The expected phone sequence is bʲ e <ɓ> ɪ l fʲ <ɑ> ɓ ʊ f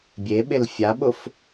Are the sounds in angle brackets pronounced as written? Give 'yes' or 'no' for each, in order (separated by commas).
yes, no